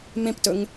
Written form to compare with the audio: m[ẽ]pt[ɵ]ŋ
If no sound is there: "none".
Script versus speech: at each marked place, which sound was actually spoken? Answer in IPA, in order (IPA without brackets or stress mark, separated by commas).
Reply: ẽ, ɵ